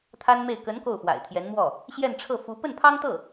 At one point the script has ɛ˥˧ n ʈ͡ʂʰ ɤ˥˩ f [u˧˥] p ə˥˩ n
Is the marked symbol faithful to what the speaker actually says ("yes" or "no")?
yes